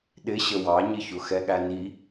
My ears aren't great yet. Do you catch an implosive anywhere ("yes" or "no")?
yes